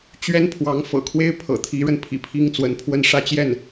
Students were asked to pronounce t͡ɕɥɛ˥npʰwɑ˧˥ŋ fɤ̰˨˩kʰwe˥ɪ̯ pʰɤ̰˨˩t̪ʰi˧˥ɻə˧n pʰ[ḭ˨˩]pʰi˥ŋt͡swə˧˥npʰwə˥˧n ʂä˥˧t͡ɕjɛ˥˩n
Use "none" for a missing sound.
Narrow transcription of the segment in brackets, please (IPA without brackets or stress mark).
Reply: ḭ˨˩